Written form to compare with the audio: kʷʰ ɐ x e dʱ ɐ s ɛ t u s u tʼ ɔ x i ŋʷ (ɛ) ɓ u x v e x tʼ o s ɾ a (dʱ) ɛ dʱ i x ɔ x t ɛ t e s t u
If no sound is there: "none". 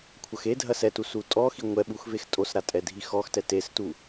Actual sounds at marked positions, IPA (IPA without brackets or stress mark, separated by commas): ɛ, tʼ